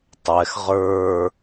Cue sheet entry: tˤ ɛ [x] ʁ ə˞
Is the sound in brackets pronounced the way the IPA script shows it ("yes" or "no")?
yes